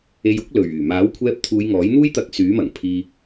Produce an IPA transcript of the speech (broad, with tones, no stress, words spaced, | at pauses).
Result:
e˧jʊ˥k̚lɵ˨˩ɥ yː˨˩maː˨˥wkʷʰɛː˧p̚ t̪ʰuː˨˧jŋɔː˨˥jn̪uː˥jt̪ɐ˧k̚ syː˨˥mɐ˨˩ŋpʰiː˧